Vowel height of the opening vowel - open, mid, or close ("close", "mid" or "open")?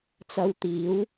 open